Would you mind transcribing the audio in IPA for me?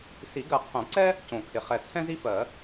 si˨˩˦ɡɜ˨˩qʰõ˨˩˦ǀɛ˥ | cõ˨˩kʰɪ˨˩ χɛ˨˩t͡sʰɛ̃˥ zi˥fɜ˨˩˦

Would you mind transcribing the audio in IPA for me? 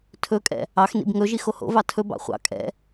tʰɵkʼɛ̰ | ɑxnḭb ŋɵʒix oho̰vɑ tʰɵbɑ̰ χʷɑ̰ kʼɛ̰

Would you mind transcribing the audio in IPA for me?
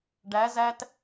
ɖæ zæt

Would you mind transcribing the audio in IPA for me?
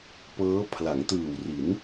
pɤː˦˥pʰla˩˦ŋ tɯː˨˩wri˩˦n

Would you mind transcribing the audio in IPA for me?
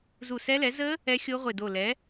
zu˧˩sɛ˦˥lɛ˩˥ zə˦˥ | ɛ˦˥xʲo˦˥ʁʷɪ˧˩ do˧˩lɛ˩˥

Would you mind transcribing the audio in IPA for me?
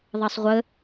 ðˤɐsˤʁʷə

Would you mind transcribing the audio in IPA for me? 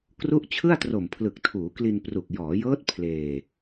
kru˦˥ʔ t͡ɕʰɯ˥˩a̯tro˨˩mpʰlɯ˨˩k̚ tʰuː˩˦kli˧npru˨˩k̚ jɔː˩˦jɤː˦˥t̚ pʰleː˧

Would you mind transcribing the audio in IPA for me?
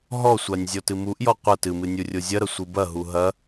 ɦɔsʷanʲ zʲɔtɨmuʔjɔ qʷɐ tɨmɨ nʲurʲozʲɐɾɐ sʷɨbɐɦu ɦɐ

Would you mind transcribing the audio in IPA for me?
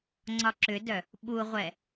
ŋ͡ǀɒǁʏdœ | ɓuʁʷɛ

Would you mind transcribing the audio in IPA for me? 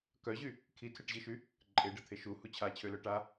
kœʑy | kʰitʰeʈʑiʃy | ǃʼeɖət̪ʰe ʃuhu t͡ɕʰat͡ɕʰølœ ʈa

